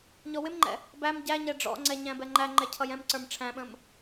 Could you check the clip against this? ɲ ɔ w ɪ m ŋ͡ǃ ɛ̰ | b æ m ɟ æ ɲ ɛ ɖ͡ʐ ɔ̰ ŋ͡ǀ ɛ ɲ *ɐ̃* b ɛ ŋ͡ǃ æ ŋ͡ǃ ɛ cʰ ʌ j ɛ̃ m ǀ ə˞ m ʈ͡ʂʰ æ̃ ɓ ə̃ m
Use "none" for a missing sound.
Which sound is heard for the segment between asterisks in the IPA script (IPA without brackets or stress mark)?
æ̃